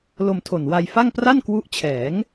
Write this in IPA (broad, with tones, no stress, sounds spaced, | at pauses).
l o˧ m tʰ o˨˩ n w a˧ j f a˥˩ ŋ p r a˥˩ n k w u˦˥ ʔ t͡ɕʰ ɛː˩˦ ŋ